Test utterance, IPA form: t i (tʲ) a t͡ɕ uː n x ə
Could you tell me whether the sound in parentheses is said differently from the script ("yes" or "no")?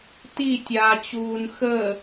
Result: no